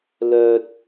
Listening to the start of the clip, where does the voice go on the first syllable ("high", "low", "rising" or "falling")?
low